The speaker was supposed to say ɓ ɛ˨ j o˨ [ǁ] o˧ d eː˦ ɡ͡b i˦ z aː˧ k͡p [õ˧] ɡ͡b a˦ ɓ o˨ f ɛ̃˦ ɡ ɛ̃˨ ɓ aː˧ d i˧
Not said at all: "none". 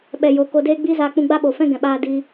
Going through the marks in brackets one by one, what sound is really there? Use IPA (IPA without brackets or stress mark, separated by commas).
k, ũ˧